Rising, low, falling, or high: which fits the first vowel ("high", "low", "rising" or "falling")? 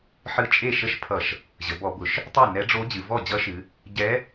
rising